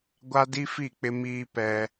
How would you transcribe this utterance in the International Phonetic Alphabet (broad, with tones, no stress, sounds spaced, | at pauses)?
ɡʷ a˦ d i˦ f i˦˨ k͡p ɪ˦ m iː˦ p ɛ˦